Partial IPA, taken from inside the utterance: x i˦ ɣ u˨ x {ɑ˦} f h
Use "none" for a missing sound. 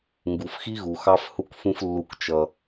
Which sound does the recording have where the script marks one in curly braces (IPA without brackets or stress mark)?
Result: ɑ˦